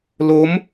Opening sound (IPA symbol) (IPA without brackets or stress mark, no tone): l